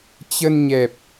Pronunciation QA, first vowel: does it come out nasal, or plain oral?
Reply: oral